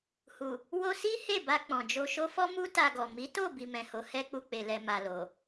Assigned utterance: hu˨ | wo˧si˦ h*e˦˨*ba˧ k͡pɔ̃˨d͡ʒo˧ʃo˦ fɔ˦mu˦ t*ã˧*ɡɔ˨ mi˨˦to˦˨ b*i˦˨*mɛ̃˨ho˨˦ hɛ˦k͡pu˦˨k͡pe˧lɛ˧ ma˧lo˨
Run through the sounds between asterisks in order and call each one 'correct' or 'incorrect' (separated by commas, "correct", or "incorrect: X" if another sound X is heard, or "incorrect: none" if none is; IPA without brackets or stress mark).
correct, incorrect: a˧, incorrect: i˧